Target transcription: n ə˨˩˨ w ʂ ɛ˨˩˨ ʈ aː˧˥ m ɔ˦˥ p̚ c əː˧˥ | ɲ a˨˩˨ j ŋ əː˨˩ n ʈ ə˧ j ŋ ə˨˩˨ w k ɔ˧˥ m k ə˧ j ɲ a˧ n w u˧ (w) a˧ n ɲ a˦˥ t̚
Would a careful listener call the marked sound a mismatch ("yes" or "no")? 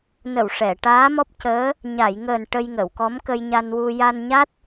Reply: yes